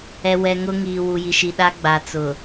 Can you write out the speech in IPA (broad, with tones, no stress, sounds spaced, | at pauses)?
ɛ˨ w ɛ˨ ŋ ʊ˦ ŋ iː˨ w u˨ j i˨ ʃ i˨ ɗ a˦ ɡ͡b a˨ t͡s ʊ˨